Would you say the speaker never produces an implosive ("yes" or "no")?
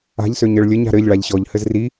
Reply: yes